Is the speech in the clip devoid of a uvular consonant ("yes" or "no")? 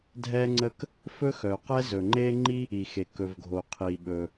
no